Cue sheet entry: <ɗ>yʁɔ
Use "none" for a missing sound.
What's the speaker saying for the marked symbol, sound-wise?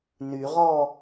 n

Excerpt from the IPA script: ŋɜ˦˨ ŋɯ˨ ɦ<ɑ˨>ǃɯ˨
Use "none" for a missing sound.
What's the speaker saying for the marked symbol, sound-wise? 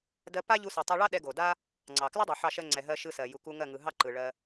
ɑ˦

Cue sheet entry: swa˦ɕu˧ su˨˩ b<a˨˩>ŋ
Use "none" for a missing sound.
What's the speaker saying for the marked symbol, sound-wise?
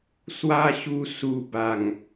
a˨˩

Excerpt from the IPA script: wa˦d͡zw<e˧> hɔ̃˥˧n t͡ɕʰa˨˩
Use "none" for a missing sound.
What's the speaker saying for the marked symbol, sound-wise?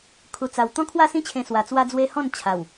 e˦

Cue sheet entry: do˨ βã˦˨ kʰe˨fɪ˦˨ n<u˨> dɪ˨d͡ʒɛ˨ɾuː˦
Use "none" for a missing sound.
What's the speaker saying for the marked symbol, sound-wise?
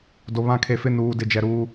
uː˨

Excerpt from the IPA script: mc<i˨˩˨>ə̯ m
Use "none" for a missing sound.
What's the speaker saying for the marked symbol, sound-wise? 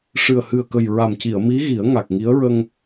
i˨˩˨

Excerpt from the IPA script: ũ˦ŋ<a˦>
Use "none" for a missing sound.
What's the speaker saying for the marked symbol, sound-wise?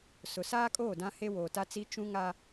a˦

